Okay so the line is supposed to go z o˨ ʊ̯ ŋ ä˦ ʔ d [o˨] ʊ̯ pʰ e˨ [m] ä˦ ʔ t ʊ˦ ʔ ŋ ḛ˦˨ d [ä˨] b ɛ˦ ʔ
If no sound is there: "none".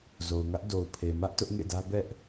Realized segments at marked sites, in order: o˨, m, ä˦

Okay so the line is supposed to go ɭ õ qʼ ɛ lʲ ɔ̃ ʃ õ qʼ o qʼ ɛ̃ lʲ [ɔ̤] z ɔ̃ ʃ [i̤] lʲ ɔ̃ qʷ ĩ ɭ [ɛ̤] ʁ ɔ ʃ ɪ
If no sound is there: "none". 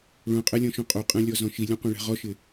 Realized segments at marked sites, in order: ɔ, i, ɛ̤

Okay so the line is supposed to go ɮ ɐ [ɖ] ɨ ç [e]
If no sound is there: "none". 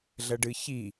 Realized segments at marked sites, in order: ɖ, i

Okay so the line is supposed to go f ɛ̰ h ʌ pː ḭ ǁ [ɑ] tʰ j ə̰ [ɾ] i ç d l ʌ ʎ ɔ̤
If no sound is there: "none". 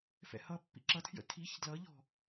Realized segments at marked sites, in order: ʌ, tʰ

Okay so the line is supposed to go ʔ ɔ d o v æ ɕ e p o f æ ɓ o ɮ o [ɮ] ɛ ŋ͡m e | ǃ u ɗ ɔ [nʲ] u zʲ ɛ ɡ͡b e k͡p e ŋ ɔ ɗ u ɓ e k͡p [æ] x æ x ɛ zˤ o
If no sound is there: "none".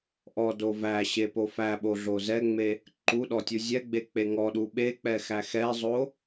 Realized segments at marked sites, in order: z, tʲ, ɛ

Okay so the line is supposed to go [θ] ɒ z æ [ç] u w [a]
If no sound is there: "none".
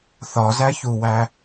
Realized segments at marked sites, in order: θ, ç, æ

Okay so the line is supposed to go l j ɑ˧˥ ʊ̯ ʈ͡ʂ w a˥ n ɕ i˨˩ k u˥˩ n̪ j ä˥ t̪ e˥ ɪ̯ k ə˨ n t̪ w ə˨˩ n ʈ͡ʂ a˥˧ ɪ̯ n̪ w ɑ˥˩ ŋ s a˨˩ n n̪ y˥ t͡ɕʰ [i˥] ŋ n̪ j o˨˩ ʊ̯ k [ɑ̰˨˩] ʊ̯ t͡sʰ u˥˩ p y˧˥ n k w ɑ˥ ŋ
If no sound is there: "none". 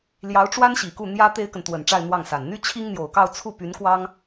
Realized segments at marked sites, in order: i˥, ɑ˥˧

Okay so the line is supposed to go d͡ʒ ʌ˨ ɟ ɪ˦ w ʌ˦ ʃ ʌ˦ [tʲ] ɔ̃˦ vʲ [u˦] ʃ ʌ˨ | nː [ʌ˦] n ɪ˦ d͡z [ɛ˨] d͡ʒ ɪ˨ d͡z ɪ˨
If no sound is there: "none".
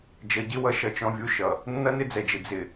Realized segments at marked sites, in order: t͡ʃ, u˦, ʌ˦, ɛ˨

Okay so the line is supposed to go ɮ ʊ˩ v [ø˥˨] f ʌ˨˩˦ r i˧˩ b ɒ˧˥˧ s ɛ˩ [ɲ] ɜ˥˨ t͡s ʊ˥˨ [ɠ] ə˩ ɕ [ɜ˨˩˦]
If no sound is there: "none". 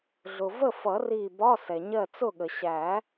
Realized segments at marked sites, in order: ə˥˨, ɲ, ɠ, æ˨˩˦

